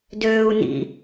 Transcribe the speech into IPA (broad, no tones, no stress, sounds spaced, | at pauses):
d øː u̯ n ḭ